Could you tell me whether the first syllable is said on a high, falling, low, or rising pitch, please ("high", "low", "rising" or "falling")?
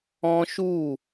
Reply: high